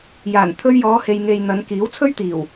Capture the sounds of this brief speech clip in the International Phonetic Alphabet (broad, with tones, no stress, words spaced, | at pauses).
jaː˨˩n t̪ʰɵ˧ɥjɔː˨˧he˨j ŋe˨j n̪ɐ˨˧nkiː˨˥w t͡sʰɵ˥ɥt̪iː˨˩w